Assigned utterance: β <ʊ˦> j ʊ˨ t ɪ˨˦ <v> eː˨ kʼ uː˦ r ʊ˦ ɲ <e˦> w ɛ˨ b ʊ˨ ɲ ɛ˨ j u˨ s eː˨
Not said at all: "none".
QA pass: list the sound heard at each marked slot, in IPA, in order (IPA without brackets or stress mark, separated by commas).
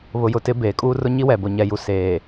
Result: ʊ˨, b, i˦